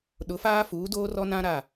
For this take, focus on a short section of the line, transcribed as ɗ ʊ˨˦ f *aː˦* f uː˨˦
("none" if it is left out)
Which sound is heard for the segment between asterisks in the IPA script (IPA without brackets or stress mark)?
aː˦